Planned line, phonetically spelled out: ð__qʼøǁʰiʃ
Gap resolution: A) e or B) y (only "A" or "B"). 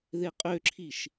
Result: A